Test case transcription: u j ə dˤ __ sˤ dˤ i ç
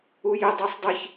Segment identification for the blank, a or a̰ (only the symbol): a